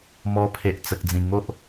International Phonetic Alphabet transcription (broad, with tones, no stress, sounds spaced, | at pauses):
m ɔ˧ pʰ e˨ ʔ t͡s ə˨ k̚ d͡z ĩ˨˩ ŋ o˦ ʔ